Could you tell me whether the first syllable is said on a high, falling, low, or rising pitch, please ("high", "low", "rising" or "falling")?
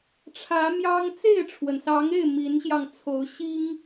rising